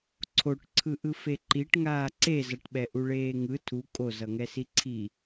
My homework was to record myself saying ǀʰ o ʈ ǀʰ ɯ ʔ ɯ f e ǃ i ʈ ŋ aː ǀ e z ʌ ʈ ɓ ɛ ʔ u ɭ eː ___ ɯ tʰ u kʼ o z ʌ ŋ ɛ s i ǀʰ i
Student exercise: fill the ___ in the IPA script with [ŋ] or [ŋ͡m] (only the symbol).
ŋ